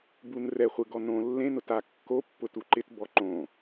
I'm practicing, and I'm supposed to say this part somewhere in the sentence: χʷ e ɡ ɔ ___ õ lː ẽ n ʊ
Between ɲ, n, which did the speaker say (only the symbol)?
n